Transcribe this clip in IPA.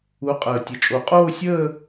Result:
u˨˥ qʼ əː˨˩ tʲ ə˨˩ t͡ʃʼ o˨˩˦ qʼ oː˥˧ sʲ əː˥˧

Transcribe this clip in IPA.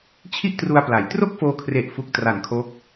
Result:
t͡ɕʰ i˥˩ ʔ t r u˧ a̯ p l a˩˦ j t r o˥˩ k̚ f oː˧ kʰ r e˨˩ ʔ f u˨˩ k̚ t r a˩˦ n kʰ o˦˥ k̚

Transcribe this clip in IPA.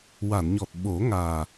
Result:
w a˨˩˨ n ɲ ɔ˨˩ t̚ ɓ o˨˩˦ ŋ aː˨˩

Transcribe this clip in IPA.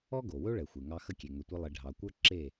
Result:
ɔ˥ ɡ o˩ w ɵ˥ ɭ ɛ˩ xʷ e˩ ŋ ɑ˧ x ə˥˩ kʲ e˩ ŋ ɵ˩ tʷ ɨ˧ lˠ e˩ ɖʱ ɑ˩ kʷ ə˞˥ ǁ e˥˩

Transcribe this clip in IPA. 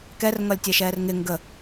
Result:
k ɛ r ŋ ʌ lʲ tʲ ɛ ʃ ɛː r ŋ ɪ ŋ ɡ ə

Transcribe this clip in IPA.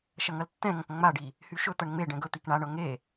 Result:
ʃ ɐ ŋ ɐ l tː ɛ̃ ŋ ɐ̃ k ŋ͡m a ɖ i | h y ʃ ɵ t̪ ɐ ɳ ŋ͡m e ɖ ɛ̃ ɡ ɵ t̪ i k ɳ a ɳ ɤ ŋ e

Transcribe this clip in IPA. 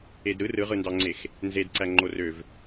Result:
e d ɾ ɯ r ɯ ʁ ɯ n d ɑ ŋ͡ǀ e x | n z e d ǀ æ ŋ͡ǃ o r ø v

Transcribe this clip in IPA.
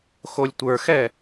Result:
x o lʲ tʷ ə˞ x ɛ

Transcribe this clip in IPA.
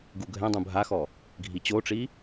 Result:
ɡ u ɡʱ ɛ̃ dˤ ũ bʱ a x ɔ | ɡʱ i t͡ɕ o ʈ͡ʂ i

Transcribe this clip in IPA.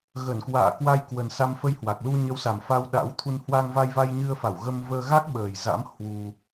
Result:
ɣ ə˧˩ n k w a̰ː˧˨ k w a˧ j k w ə˨˩ n s a˧ m f ə˧ j h w a˨˩ k̚ l u˧ ɲ ə˨˦ w s a˨˩ m f a˧ w ɗ a̰˧˥ w t̪ʰ u˧ n h w a˧ ŋ v a˧ j v a˧ j ɲ ɨ˧ ə̯ f a˧˩ w ɣ ə˧ m v əː˧ ɣ a˦˥ k̚ ɓ əː˨˩ j z a̰˧˥ m h w u˧

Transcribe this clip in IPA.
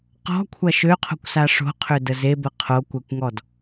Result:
q ɔ̤ kʷʰ ɐ ʃ ø qʰ o̤ kʷ s a ʂ o̤ qʰ ø d ə z e b ə qʰ o kʷ ɛ kʷ ŋ ɔ d

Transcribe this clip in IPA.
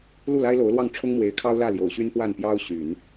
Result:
l u˥˩ l a˥ ɪ̯ l o˧˥ ʊ̯ l w ɑ˥˩ ŋ ʈ͡ʂʰ ʊ˥ ŋ m w e˧˥ ɪ̯ kʰ ɑ˥ ʊ̯ l ä˥˩ l j o˨˩ ʊ̯ ɕ y˥ n p w a˥˩ n p j ɑ˥ ʊ̯ ɕ y˨˩˦ n

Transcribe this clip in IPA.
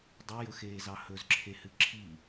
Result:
dˤ ɨ j ɵ x eː z ɑ h ɵ z ǁʰ e h ɨ ǁʰ i

